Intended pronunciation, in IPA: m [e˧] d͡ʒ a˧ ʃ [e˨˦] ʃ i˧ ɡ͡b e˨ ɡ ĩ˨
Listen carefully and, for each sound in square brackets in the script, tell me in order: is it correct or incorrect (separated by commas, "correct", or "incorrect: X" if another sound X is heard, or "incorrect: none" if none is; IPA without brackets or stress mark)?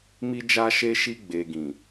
incorrect: i˧, incorrect: e˧